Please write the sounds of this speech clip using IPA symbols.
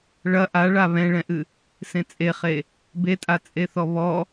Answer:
ɭɐ ʔaɭa βɛ̃ɭɛ̃ʔɨ | sẽt͡sʼeχe | betʼa t͡sʼeθɔβɔ

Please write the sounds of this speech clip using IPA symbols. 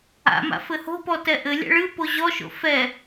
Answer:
a̰ma̰ fɘho̤pɔ tɛʔɘlʲa̰ ɭɨ poʑɔʃo̰ fɛ

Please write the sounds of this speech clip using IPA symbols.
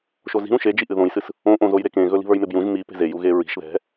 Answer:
ʃozi̤ ɾũʃed͡ʒiʔɨ ðõjsɨs | õʔõzoj ɾekẽɣɵ li̤βə˞jmebjũʒ mi pe̤zeju ɣeɹi̤ʃ ðɛ̤

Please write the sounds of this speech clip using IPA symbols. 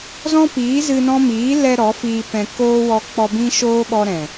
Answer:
zɔ̃˦piː˨˦ zɨ˧nɔ̃˦ miː˨˦lɛ˧ ɾɔ˨˦fiː˧pɛ̃˧ koː˦wɔ˧ k͡pɔ˧bĩ˦ʃoː˦ɓɔ˧ ɾɛ̃˨

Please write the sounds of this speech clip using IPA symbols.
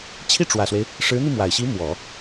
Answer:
t͡ɕʰi˥˩ʈ͡ʂwä˨˩swe˦ɪ̯ | ʂɻ̩˧˥n̪i˧mwa˨˩ɪ̯ɕi˧˥ mwɔ˨˩˦

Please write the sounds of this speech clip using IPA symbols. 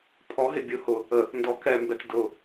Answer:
pʰɔɦɪ bʲʊ hʊ | ə | ndɔkɛmbɛt dʊ

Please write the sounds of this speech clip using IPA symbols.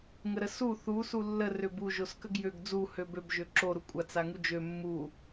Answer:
ŋəɾəsu θu sulːə røbu ʒoskəɡjøɡ d͡zu høbøb ʒøǁo ɾukʷʼat͡s aŋud͡ʒø mːu

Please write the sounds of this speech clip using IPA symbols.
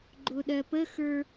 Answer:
ɡ͡ǃʊɗɜpəxə˞

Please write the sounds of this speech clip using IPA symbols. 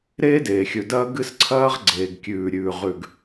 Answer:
ɾeː˦deː˨xʲɵ˨dɐː˦ ɡɨ˦sǀʰɐː˦ʁ ɡ͡ǀeː˨ɡkʲʉː˨ ɾʲʉː˨ʁʉ˨ɡ

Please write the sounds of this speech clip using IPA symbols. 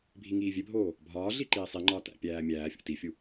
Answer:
bʱiŋiːvʲebʱoː | bʱɒː ɮiǃiːsˤiŋ͡ǃɒː tæ̰pʲæː mʲæːfʲo̰ tifʲu

